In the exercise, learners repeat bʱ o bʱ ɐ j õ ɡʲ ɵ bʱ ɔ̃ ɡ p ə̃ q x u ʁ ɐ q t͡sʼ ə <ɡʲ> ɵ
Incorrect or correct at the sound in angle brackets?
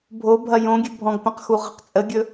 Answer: correct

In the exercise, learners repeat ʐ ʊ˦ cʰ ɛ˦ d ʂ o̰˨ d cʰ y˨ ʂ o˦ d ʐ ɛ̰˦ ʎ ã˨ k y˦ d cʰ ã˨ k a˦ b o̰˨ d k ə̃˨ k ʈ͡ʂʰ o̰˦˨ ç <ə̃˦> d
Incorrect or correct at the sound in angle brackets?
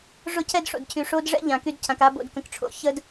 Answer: incorrect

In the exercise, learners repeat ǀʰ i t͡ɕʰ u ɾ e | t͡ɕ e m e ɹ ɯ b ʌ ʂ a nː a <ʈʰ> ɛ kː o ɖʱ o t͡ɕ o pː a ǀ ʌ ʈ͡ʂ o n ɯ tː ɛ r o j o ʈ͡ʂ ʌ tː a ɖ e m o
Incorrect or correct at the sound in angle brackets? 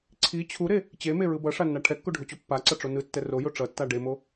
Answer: correct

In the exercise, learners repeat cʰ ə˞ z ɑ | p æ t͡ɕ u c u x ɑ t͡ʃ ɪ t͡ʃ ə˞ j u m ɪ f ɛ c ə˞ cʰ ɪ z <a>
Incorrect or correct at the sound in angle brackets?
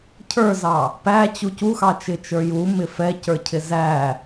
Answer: incorrect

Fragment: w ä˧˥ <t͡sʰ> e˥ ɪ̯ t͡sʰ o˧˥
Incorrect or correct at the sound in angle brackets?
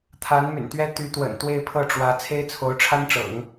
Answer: correct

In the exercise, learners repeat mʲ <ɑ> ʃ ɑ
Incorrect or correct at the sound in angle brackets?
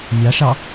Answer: correct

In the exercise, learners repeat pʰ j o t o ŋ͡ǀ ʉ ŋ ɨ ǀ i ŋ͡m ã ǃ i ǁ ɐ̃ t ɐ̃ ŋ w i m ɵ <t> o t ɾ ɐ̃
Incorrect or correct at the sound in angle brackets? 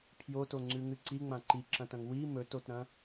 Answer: correct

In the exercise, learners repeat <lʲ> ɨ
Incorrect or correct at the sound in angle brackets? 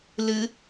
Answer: incorrect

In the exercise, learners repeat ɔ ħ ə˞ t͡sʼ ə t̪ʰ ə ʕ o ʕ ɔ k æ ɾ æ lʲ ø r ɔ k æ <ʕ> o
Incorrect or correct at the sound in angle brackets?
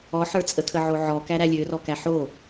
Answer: incorrect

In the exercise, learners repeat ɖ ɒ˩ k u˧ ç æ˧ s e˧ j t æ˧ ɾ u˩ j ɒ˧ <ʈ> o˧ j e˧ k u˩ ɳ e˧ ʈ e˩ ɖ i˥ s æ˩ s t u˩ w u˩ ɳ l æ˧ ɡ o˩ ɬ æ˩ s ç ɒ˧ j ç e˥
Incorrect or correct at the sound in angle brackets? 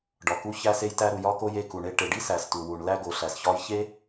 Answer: incorrect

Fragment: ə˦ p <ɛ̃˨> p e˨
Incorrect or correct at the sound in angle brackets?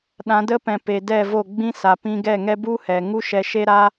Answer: correct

